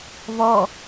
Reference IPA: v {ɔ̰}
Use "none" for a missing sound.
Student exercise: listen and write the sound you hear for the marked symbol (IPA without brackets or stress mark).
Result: ɔ